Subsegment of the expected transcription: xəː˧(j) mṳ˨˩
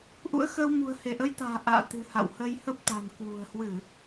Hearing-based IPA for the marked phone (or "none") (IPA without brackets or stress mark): w